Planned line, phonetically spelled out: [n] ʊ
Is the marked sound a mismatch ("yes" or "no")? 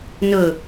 no